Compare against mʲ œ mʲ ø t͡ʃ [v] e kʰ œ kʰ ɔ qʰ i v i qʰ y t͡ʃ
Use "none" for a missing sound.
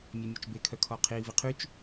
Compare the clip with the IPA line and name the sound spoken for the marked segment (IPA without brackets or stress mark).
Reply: b